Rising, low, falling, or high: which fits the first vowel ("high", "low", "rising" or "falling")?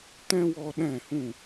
high